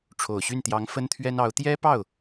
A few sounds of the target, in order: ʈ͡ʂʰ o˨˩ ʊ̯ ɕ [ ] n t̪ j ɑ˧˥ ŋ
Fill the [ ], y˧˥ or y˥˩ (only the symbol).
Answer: y˥˩